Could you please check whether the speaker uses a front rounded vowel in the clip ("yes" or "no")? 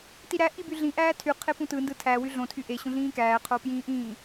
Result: yes